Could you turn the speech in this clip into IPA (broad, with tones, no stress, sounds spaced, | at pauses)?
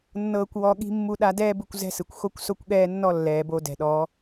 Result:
nː ɤː˧ kʷ w ɔ˧ ɠ i̤˦ mː u˦ ɗ a˦ d ɛː˦ b ɯ˧ kʷ z ɛ̤˦ s ɯ˨ kʷ x o˧ kʷ s o˧ kʷ ɠ ɛː˧ nː ɔ˧ lː ɛː˨ b o˧ d ɛ̤˨ ɗ ɔ˨˦